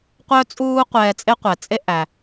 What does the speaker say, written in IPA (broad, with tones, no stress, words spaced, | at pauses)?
qʷœ˥t͡sʼuː˥ qʷɛː˧t͡sʼe˥ qʷɛ˩t͡sʼe˥ ʔæ˩